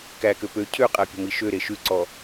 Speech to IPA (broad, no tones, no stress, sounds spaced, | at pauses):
k æ k ø p ø cʰ ø qʼ æ pʲ ɔ̤ m i ʃ ø ɾ e ʃ ʉ ǀ ɔ